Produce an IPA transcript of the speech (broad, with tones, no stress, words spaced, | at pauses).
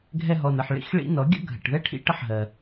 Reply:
ɡʱɛ˧ɦɔ˨nə˨ħɭḭ˧x ɭḭ˧nɔ˨˦ɡʲə̰˦ ɡʱə̰˨ʈðɛ˦ʈʰḭ˦ ʈə˦ħɦɜ˨